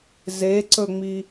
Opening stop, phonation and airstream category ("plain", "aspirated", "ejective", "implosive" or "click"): click